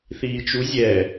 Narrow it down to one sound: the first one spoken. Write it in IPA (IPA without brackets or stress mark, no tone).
θ